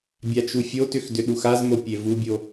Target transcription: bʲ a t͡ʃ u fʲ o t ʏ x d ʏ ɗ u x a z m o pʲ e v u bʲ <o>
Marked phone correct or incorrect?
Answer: correct